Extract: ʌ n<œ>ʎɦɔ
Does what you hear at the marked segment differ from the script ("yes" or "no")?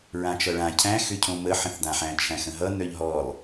no